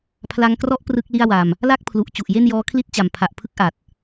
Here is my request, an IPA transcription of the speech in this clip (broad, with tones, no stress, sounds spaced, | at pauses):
pʰ l a˧ ŋ k r ɔ˦˥ ʔ p r ɯ˥˩ k̚ l i˥˩ a̯ w a˧ m | l a˥˩ k̚ pʰ l u˨˩ ʔ t͡ɕ u˨˩ ʔ j e˥˩ n j ɔː˦˥ kʰ l i˥˩ t̚ t͡ɕ a˨˩ m pʰ a˨˩ ʔ pʰ ɯ˥˩ k̚ ʔ a˨˩ t̚